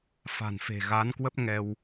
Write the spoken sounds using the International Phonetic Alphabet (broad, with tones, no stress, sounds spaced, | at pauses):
f a̤˨˩ n f e̤˨˩ ɣ a˨˦ n k w ə˦˥ p̚ ŋ ɛ˧ w